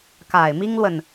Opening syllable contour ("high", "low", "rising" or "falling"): low